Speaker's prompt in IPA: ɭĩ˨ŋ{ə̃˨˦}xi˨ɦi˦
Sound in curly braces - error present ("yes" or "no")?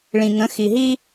no